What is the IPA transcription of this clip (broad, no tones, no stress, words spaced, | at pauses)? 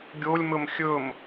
ɡʲolʲmɵm xʲɵm